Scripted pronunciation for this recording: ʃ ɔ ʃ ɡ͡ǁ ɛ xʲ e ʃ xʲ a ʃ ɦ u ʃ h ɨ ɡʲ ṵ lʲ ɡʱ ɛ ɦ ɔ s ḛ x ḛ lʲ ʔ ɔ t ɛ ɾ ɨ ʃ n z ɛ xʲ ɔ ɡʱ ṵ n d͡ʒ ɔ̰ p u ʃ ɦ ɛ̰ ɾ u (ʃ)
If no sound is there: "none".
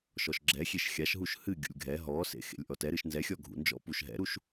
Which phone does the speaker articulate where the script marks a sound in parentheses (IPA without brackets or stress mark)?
ʃ